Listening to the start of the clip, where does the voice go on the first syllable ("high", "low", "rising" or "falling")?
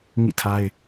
falling